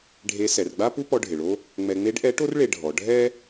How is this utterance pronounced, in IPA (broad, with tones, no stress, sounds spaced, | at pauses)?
ɖʱ e˧˥ s ɛ˩˧ r ɡ͡b a˥ p u˥ p ɔ˧ ɖʱ ɪ˩ ɭ o˧ | ŋ͡m ɛ˧ ŋ͡m e˧˥ ɖ ʔ ɛ˧˥ ʈ o˥ r ɭ e˧ ɖʱ ɔ˩˧ ɖʱ ɛ˥